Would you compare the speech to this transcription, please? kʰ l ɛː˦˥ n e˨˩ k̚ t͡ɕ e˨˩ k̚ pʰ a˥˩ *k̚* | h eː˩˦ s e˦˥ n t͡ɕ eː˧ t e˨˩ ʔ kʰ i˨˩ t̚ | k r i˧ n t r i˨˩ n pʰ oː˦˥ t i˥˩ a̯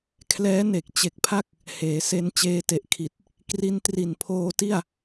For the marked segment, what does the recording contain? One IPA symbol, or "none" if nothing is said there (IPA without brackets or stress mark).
k̚